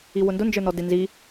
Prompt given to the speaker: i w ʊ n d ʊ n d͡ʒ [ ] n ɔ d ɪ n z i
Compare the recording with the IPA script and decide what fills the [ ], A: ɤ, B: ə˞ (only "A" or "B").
B